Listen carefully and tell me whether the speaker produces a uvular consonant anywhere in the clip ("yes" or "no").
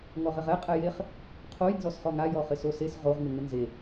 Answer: yes